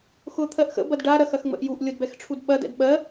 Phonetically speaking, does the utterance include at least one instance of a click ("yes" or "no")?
no